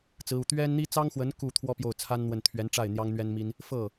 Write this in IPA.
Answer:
t͡s ɹ̩˧˥ u˨˩ t̪ ɥ ɛ˥ n n̪ i˥ t͡s ɑ˥ ŋ x w ə˧˥ n k u˥˩ t̪ʰ w ɔ˥ p j o˥˩ ʊ̯ t͡sʰ a˥ n n̪ w ə˥˩ n t̪ʰ ɥ ɛ˧˥ n ʈ͡ʂ a˥˩ ɪ̯ n̪ j ɑ˥ ŋ n̪ ɥ ɛ˥ n m i˥ n | f ɤ˥˩

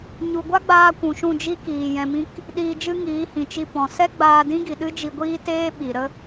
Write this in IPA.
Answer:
ɲ u˨ ɡʷ a˦ ɡ͡b aː˧ kʷ ũ˨ ʃ ũ˦˨ d͡ʒ i˦ k iː˨ j ɛ̃˧ m ĩ˦ k | ɗ iː˧ d͡ʒ ɨ˦ ŋ iː˨˦ h ĩ˨ t͡ʃ i˧ p ɔ̃˨ s ɛ˦ ɡ͡b aː˧ d ĩ˦ ɡ i˨ ɗ ɨ˦ d͡ʒ i˧ ɡʷ iː˦ t eː˦ ɓ i˨ ɾ ə˦

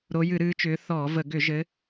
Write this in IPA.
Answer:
ɾ o˨˦ j ɨ˧˩˧ ɾ ɨː˨˦ t͡ʃ ʏː˨˦ θ ɔː˧˩˧ v ə˧˩˧ ɡ ʏ˧˩˧ ʒ ɘ˨˦

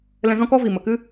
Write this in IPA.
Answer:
l ɛ̃˧ z ɔ̃˦ k ɔ˦ v i˨ m ə˨ k ɨ˦

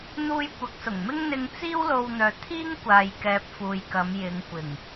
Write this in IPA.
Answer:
n̪ uː˧ j kʷ ɐ˨˥ k̚ s ʊ˨˩ ŋ m ɪ˥ ŋ n̪ ɪ˧ ŋ t͡s iː˥ w l o˧ w n̪ œː˨ t̪ʰ iː˥ ŋ kʷ aː˨ j k ɛː˨ p̚ f uː˨ j k ɐ˨˧ m j ɪ˨˧ ŋ kʷ ɪ˨˩ ŋ

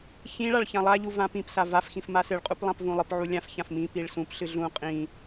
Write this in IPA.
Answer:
ç ĩ ɭ a ɭ ç ã lˠ a ʎ u v ã p ĩ p s a v a f x ĩ f m a s ɨ ɭ qʼ u p lˠ ã p v ũ lˠ ɨ p ʕ u lʲ ã f ç ã f m ĩ p i ɭ s ũ p ɬ ɨ ɮ ũ qʼ ĩ

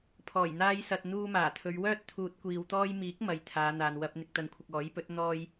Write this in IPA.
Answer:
pʰ ɔː˨˩ j n̪ aː˧ j s ɐ˨ t̚ n̪ uː˧ m aː˨˩ t̪ʰ ɵ˨˧ ɥ w œː˥ t̚ t̪ʰ uː˨ t̚ kʷ iː˨ w t̪ ɔː˧ j m iː˨˥ k̚ m ɐ˨ j t̪ʰ aː˨˧ n̪ aː˨ n w ɐ˧ p̚ n̪ ɪ˨ k̚ t̪ ɐ˨ n kʷʰ ɪ˨ k̚ ɔː˨˥ j p ɵ˨˥ t̚ n̪ ɔː˧ j

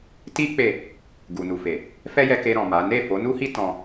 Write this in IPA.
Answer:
t i˦ k͡p e˦˨ | ɡ u˨ n u˨ f e˨ | f ɛ˦ j ɛ˧ k e˧ ɾ ɔ̃˨ m a˨˦ n e˦˨ f o˨˦ n u˦ h i˦ t ɔ̃˧

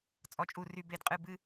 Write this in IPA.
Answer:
t͡sʼ ɔ˨˩ t͡ʃʼ u˨˩ r y˨˩ b e˨˩ d qʼ ɨ˨˩ b ɨ˥˩

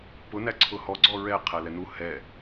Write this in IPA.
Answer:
p ʊ n æ ǀʰ ʊ h ɔ ɡ͡ǀ ɔ ɹ ɛ qʰ æ l ɛ n u h ɛ

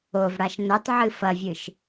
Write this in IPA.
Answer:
o v ɽ a ʃ n ɵ tˤ ʕ ɨ f ɐ vʲ ɨ ʃ

